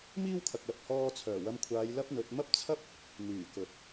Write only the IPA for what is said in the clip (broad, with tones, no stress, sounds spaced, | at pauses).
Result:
m iː˥ w kʰ ɐ˨ k̚ l ɐ˨ p̚ h ɔː˧ t͡sʰ œː˨˩ w ɐ˧ m kʷʰ aː˨˧ j l ɐ˥ p̚ n̪ ɵ˨˥ t̚ m ɐ˥ p̚ t͡sʰ ɐ˥ p̚ | n̪ yː˨˩ k ɵ˨ t̚